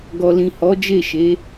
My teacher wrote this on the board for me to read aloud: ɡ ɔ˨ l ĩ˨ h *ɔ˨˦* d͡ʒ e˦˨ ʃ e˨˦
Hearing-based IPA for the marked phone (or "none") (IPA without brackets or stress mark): ɔ˨˦